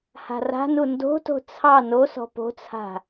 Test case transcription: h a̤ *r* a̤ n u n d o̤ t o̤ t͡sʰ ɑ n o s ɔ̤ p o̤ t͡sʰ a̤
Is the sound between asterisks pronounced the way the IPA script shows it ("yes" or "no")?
yes